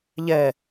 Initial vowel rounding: unrounded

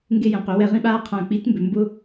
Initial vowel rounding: unrounded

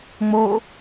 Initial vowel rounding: rounded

